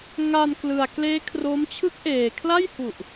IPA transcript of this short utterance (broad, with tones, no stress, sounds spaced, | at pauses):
ŋ a˧ n k l ɯ˨˩ a̯ k l eː˦˥ kʰ r o˦˥ m t͡ɕʰ ɯ˦˥ k̚ ʔ eː˨˩ kʰ l a˥˩ j h u˨˩ ʔ